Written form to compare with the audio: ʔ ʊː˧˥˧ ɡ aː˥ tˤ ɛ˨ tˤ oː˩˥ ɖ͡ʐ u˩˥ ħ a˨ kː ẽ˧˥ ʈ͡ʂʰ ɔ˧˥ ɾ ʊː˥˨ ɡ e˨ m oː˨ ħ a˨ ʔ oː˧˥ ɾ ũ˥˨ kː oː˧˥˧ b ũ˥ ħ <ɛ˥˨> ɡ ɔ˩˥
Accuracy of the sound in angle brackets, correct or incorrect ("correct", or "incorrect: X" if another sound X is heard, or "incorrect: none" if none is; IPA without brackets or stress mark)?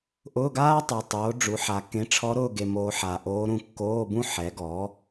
incorrect: ɛ˩˥